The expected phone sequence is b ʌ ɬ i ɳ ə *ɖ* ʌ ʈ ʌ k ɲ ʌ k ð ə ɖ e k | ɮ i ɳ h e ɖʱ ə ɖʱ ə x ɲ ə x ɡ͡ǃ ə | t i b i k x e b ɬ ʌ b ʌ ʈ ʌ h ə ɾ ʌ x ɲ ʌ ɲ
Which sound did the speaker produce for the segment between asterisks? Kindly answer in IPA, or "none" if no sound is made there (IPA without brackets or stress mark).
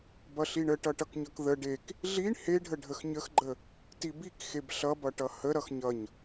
ʈ